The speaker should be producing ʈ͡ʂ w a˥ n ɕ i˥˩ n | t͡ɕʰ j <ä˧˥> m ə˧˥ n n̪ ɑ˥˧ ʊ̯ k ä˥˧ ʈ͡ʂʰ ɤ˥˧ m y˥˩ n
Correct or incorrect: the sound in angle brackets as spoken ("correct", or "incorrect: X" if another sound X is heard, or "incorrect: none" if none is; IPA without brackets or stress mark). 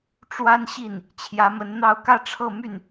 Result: correct